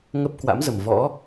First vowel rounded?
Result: no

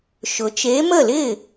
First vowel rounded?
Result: yes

